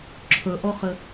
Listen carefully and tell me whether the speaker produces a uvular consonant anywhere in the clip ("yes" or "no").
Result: yes